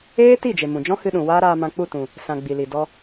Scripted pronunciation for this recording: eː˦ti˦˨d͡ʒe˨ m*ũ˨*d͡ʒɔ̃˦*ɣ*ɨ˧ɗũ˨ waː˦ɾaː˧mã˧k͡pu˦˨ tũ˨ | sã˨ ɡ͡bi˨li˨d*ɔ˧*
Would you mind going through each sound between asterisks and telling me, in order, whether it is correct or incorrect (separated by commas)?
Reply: correct, incorrect, correct